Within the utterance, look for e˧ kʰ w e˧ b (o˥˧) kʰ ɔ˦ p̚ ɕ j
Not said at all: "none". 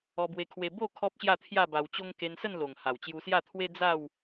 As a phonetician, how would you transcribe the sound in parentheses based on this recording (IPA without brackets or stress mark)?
o˥˧